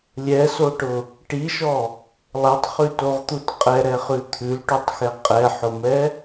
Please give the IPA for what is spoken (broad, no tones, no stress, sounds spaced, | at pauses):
lʲ ɛ s o ʈ ʊ | ʈ i ʃ ɔ | lˠ ɛ tˤ χ ʉ t o ʁ t̪ u t qʼ ɛ ɾ ɛ χ ʉ t̪ʰ ʉ l ʈ u tˤ x ɛ qʼ ɛ ħ ʊ m ɛ